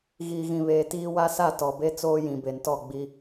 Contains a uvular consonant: no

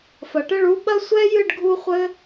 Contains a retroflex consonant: yes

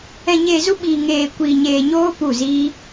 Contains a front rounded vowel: no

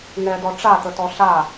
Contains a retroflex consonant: yes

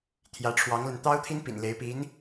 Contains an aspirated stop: yes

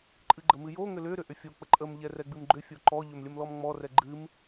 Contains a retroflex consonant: no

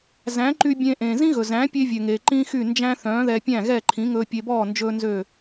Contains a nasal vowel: yes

